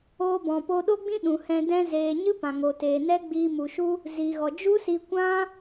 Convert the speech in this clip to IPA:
oː˧ b ɔ̃˨ p o˧ ɗ o˦ ɡ͡b ĩ˦ ɗ ũ˨ h ɛ̃˧ d ɛ̃˦ z eː˧ ɲ ɨ˦ p ã˨ ŋ o˨ t eː˨ n ɛ˦ ɡ͡b iː˧ m u˨ ʃ u˦ | z i˨ ɣ ɔ˨ d͡ʒ u˦ s i˧ kʷ ã˦

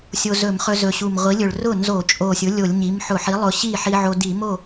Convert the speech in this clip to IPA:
sʲ o˧ z ɵ˧˩˧ m χ ɵ˧ z ɵ˨˩ ɕ u˨˩ m ʁʷ i˩˥ lʲ ɵ˨˩ ɭ r ʊ˥˩ n z o˧˩˧ t͡ʃʼ o˨˩ sʲ ʊ˩˥ lʲ o˧˩˧ lʲ ɲ i˩˥ m ħ ʊ˧˩˧ ħ i˩˥ lˠ ʊ˨˩ ɕ i˥˩ ħ i˧ ʕ o˧ d i˧˩˧ m o˥˩

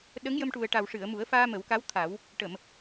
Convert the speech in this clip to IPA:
ɗ ə˧˥ ŋ j ə˧ m ʈ u˨˩ ə̯ ʈ a˨˩ w ʂ ɨ˨˩˨ ə̯ m u˨˩˦ ə̯ f aː˧ m ə˨˩˦ w k a˧˥ w t̪ʰ a˨˩˦ w | ʈ ə˨˩˨ m

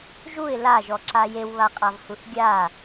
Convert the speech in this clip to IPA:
ʒ u ɪ̯ l a ʒ ɔ ǁ a j e w β a qʼ a v h u θ ɡʲ a

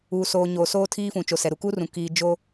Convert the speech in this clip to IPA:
uː˨ s oː˨ ɲ oː˨ s oː˦ tʰ iː˦ f ũ˨ t͡ʃ o˨ s ɛ˨ ɾ u˨ k uː˦ r ũ˨ k iː˦ d͡ʒ o˦

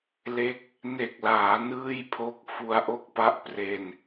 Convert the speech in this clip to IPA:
l e˥˩ k̚ | n e˨˩ k̚ l aː˩˦ n ɯː˥˩ j pʰ o˦˥ k̚ f u˧ a̯ ʔ o˥˩ k̚ p a˦˥ ʔ p r e˧ n

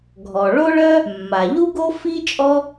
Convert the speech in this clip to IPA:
ɡʱ ɔ˩ ɭ o˥ ɭ œ˥ | mː a˩ ʎ u˥ ɡ o˥ f i˥ t͡ʃʼ ɔ˥

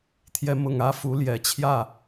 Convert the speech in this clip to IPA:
t̪ʰ j ɛ˨˦ m ʊ˨˩ ŋ ä˦ f u˨˦ l j ɛ˨˩ t͡ɕʰ j ä˥˨

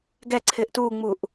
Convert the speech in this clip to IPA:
ɡ ɛ ǀʰ ɪː ʔ t uː ŋ͡m uː ʔ

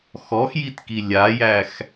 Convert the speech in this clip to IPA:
x ɔ x j i t k i lʲ a j æ x

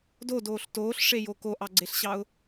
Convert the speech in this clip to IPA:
d o d oː ɬ t oː ɬ ʂ e j o k o ʔ ɑ ɡ͡ǀ e ɬ ɕ ɑ ʊ̯

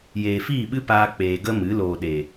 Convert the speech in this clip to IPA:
j eː˨ f iː˦˨ ɓ ɨ˦ p aː˧ k͡p eː˨ ɡ ə˦ m ɨ˨˦ l oː˨ ɗ e˨

